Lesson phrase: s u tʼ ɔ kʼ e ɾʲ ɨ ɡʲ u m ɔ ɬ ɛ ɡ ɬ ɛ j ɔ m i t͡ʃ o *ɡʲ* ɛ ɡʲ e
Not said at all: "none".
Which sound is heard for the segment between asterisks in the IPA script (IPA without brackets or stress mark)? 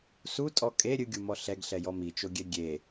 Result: ɡʲ